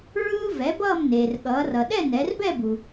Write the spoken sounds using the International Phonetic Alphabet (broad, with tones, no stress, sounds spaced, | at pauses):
ɹ ɯː˥ v ɛ˩˥ b ʌː˥˧ m n eː˩ r ɠ ʌː˩˧ r ʌ˩ ɗ ɛ˥˧ n ɛ˩˧ r b ɛ˥˧ b u˩